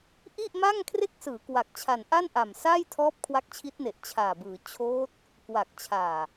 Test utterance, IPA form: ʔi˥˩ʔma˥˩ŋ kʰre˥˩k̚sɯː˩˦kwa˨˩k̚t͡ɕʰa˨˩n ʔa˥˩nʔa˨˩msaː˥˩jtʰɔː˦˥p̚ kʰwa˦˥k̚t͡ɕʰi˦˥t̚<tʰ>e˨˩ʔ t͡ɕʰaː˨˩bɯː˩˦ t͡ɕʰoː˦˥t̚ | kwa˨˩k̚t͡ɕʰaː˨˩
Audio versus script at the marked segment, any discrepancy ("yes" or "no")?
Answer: yes